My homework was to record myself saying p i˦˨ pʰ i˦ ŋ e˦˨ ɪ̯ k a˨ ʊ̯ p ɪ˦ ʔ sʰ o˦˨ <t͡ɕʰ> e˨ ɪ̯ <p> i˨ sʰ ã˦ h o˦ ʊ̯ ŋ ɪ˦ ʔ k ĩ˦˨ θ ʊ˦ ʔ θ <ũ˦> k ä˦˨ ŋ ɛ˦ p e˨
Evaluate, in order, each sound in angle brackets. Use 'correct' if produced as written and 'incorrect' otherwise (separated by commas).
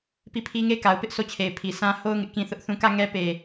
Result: correct, incorrect, incorrect